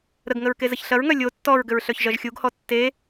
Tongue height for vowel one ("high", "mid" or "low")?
mid